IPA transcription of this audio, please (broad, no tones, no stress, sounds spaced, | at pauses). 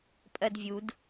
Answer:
pʼ ɜ d vʲ u d